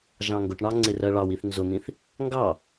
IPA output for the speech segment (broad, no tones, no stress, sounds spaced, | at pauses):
ʒ ɑ̃ ŋ ɡ ʊ ʈ ɳ ɑ ŋ͡ǀ ɪ r ɜ ɭ ɑ w i θ n z ʊ n̪ ĩ θ | ŋ ɡ ɑ